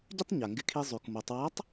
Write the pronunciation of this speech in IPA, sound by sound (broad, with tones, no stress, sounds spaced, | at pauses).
ɟ ɪ˥ tˤ ɲ a˩ ŋ ɡ ɪ˧ kʰ i˧ zˤ ʉ˩ k m o˩˧ tˤ w a˧˥ tˤ